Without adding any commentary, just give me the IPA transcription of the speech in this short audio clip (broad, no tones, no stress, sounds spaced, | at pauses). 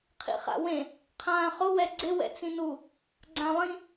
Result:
qʰ ḭ χ a̰ w ẽ | qʰ ãː χ ʊ w ɛ ɡ͡ǀ ɪ w ɛ̰ t͡s ĩ n u | ɡ͡ǀ ã lˠ ĩ